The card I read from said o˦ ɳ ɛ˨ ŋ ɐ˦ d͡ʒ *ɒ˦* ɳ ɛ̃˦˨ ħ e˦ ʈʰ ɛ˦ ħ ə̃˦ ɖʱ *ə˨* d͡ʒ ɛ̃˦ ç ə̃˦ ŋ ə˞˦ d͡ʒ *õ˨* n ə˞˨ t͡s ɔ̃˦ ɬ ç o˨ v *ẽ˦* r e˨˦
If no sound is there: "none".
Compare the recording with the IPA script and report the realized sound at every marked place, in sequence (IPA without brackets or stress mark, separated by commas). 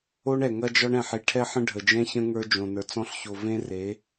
ɒ˦, ə˨, õ˨, ẽ˦